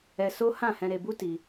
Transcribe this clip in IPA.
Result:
ɛ˧ s o˦ h ã˦˨ h ɛ̃˧ ɾ e˧ b u˦ t i˧

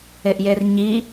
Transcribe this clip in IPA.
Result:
e ʔ j e r ɲ i

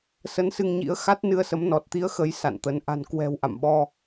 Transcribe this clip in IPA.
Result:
s ə˨˦ n s ɨ˧ ŋ ɲ ḭ˧˥ ə̯ x a˦˥ t̚ n ɨ˧ ə̯ s ə˨˦ m n ɔ˨˩ t̚ t̪ i˨˦ ə̯ x ə˨˦ j s a̰˧˨ n t̪ ə˨˦ n ʔ a̤˨˩ n k w ɛ̤˨˩ w ʔ a̰˧˨ m ɓ ɔ˧

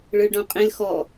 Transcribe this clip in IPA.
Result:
ɭ ə˞ ɭ ɖ ɔ̃ qʼ ẽ l x ɔ

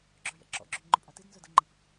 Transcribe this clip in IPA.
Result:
ɡ͡ǁ œ j ɛ̰ ǁ ɔ̰ ɡ͡ǁ ʏ m ŋ͡ǃ ʊ pʼ a t ɪ d n z œ d ə ŋ͡ǃ ɪ p

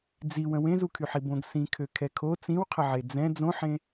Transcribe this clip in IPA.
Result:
d͡z i w ə̃ w ẽ z u kʰ y ħ i b õ ɡ s ĩ kʰ ø kʰ ɛ kʰ o t͡s ĩ w qʰ ə ʕ e d͡z ɛ̃ d͡z õ ħ ẽ

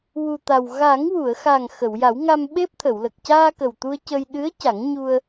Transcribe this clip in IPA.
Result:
w u˨˩ t̪ a˨˩ w ɣ a˨˩˦ ŋ w u˨˩˨ ə̯ x a˨˩ ŋ x ə˨˩˨ w j a˨˩˦ w ŋ a˧ m ɓ e˦˥ p̚ t̪ʰ ə˨˩˨ w l ə˨˩ k̚ c aː˧ k ə˨˩ w t̪ u˧ ə̯ c ə˧ j ɗ ɨ˧˥ ə̯ c a˨˩˦ ŋ ɲ u˧ ə̯

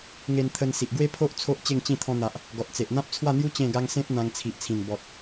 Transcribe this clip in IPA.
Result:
ŋ e˧ n t̪ʰ ə˧ n s i˨ ʔ ɡ w e˦ pʰ o˦ ʔ t͡sʰ o˦ ʔ t͡ɕ e˥˧ ŋ t͡ɕ ĩ˥˧ t̪ʰ ɔ̃˧ n̪ a˨ ʔ | ɡ ɔ˨ t̚ t͡s e˨ ʔ n̪ ã˦ p̚ t͡sʰ w a˥˧ n̪ j u˦ t͡ɕ ẽ˥˧ ɡ a˦ ŋ s ẽ˦ p̚ n̪ ã˧ ŋ t͡sʰ i˨ ʔ t͡sʰ ĩ˨˩ n b ɔ˨ t̚

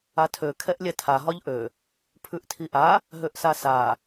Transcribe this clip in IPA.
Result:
a tʰ ø kʰ ɛ ʔ lʲ ɛ tʰ a ɦ ɒ ʎ ʔ ø | pʰ ʉ ʔ tʰ i ʔ a | ɦ ø ʔ s a s a

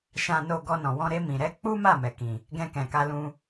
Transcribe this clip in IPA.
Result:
ʃ ã˧ n o˧ ɡ ɔ˧ n ɔ̃˨ w ɔ̃˧ ɾ e˧ m ĩ˨ ɾ ɛ˨˦ k͡p u˦ m a˦˨ m ɛ˨ k ĩ˨ | ɡ ɛ̃˧ k ɛ̃˨ k a˧ l ũ˧

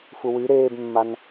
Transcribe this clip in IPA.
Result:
f u w y ɾ eː b mː a n

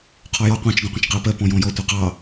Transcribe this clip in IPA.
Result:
qʰ ɔ j ɔ qʷ ɑ̃ t͡ʃ ɡ ɔ̃ qʷ ə̃ t͡ʃ q ə o̯ p ɜ p ɔ̃ j ɔ̃ j ɔ tʷ ɨ q ɑ

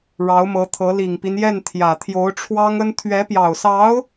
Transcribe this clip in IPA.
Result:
ɻ ɑ˧˥ ʊ̯ m ɤ˧˥ t̪ʰ ɤ˧˥ l i˨˩ ŋ p i˦ n j ɛ˥˩ n t̪ʰ j ä˨˩ t̪ʰ j o˧˥ ʊ̯ ʈ͡ʂʰ w ɑ˥ ŋ ə˥ n t̪ʰ ɥ ɛ˧˥ p j ɑ˨˩ ʊ̯ s ɑ˧˥ ʊ̯

